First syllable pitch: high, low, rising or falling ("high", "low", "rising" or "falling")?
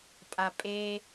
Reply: low